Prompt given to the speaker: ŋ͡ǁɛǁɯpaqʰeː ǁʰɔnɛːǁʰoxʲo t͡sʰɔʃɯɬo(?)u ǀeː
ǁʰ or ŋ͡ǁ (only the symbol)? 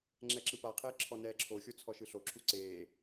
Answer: ǁʰ